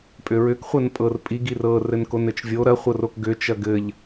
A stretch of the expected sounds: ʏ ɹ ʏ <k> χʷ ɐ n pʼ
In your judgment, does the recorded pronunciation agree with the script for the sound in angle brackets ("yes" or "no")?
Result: yes